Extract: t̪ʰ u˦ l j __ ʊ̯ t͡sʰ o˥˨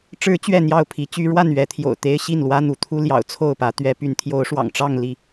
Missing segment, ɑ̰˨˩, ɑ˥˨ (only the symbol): ɑ̰˨˩